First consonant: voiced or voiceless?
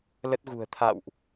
voiced